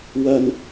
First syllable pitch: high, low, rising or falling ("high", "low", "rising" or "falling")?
low